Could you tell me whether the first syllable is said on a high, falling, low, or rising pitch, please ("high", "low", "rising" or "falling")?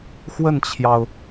falling